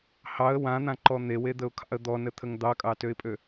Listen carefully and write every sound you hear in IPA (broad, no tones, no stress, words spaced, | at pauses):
hɑə̯ wãn̪ãǃɔ n̪ewed̪əʊ̯kʰɑ̰ə̯ d̪ɔnət̪ʰəŋ d̪ɑkʼɑtøɪ̯pʼø